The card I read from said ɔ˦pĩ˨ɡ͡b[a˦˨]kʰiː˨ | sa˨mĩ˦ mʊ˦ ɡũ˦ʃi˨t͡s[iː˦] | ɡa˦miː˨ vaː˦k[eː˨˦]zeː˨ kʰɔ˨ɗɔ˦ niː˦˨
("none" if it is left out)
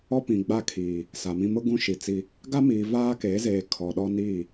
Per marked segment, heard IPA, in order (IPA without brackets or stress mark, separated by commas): a˦˨, i˦, eː˨˦